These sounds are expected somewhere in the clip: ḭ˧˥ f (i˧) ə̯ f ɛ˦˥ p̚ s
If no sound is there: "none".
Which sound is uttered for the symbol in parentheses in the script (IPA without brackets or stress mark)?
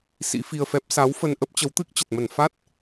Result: i˧